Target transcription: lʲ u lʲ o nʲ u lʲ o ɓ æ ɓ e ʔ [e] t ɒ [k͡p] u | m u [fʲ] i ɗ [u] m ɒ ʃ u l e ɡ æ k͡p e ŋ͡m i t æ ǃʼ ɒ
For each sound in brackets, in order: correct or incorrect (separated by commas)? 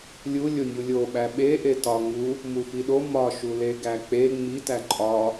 correct, incorrect, incorrect, incorrect